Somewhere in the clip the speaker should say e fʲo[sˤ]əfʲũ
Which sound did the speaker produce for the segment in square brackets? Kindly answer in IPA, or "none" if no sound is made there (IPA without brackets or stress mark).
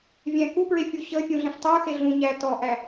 ɕ